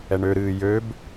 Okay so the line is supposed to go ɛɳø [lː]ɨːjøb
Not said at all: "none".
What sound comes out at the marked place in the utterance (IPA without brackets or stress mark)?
ɾ